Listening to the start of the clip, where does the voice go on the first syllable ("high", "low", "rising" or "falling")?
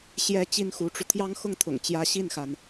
high